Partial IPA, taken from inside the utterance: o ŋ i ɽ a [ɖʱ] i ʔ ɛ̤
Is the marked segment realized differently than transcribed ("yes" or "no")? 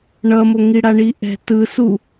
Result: yes